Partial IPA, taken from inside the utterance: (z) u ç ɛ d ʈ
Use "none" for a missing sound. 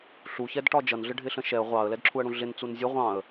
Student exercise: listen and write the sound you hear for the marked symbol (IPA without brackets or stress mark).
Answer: ɬ